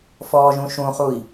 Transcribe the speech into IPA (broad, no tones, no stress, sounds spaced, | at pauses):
f ɔː ʒ ũ ʃ ũ χ u i̯